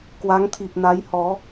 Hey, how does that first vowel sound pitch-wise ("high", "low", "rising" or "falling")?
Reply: rising